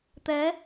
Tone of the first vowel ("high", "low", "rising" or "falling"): rising